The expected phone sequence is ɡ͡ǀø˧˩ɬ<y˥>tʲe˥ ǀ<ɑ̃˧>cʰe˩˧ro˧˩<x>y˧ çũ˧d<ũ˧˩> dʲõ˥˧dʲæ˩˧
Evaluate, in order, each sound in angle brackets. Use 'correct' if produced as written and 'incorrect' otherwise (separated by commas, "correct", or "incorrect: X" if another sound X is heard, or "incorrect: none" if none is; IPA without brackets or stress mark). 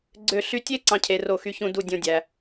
incorrect: y˧, correct, correct, incorrect: u˧˩